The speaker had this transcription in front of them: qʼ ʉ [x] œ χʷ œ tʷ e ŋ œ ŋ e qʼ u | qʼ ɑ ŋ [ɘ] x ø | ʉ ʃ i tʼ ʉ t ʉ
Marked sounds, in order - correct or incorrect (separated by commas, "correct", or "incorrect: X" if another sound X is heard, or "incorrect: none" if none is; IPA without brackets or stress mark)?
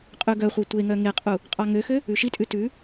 incorrect: ɡ, incorrect: ø